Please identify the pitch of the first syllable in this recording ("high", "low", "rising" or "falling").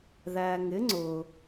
low